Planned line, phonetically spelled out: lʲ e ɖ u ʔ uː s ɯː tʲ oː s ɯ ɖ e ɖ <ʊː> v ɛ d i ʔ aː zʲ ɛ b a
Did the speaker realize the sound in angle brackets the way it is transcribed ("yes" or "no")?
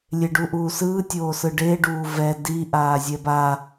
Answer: no